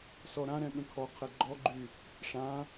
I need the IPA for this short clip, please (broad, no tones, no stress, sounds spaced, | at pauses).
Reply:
s ɔ ɾ ã ɾ ɛ̃ ɠ ə̃ kʰ ɔ qʰ ɛ ɡ͡ǃ ɔ ɡ͡ǃ y | ʂ ã